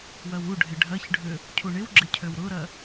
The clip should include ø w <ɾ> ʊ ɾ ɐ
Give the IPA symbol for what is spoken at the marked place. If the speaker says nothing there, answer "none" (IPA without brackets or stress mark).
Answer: ɾ